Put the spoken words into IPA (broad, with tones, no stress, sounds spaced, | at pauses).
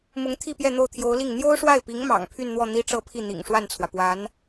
m ʊ˧˥ ŋ t̪ʰ i˥˧ p j ɛ˥˧ n̪ o˥˩ ʊ̯ t̪ʰ j o˧˥ ʊ̯ l i˥˩ ŋ n̪ j o˥ ʊ̯ ʂ w a˥˩ ɪ̯ p i˧˥ ŋ m ɑ̰˨˩ ŋ pʰ y˥˧ n n̪ w ɔ˥˩ n̪ i˥ ʈ͡ʂ ɤ˥˧ pʰ i˥˩ n̪ ḭ˨˩ ŋ ʂ w a˥˩ n t͡sʰ w ä˩ p w a˧˥ n